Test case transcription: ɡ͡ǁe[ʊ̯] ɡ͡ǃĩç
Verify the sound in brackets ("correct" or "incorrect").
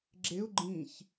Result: correct